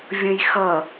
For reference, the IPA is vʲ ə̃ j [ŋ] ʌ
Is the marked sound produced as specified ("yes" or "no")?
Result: no